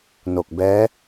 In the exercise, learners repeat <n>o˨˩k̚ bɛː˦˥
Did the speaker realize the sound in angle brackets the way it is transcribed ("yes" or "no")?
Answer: yes